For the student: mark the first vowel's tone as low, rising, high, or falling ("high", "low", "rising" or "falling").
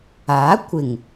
rising